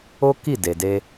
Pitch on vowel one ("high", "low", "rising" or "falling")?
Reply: high